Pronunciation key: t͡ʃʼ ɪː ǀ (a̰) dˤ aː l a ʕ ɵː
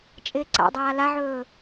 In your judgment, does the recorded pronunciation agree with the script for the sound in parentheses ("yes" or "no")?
yes